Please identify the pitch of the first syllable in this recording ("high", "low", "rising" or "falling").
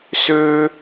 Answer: high